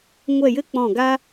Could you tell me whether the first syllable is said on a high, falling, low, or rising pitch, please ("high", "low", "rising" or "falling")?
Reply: falling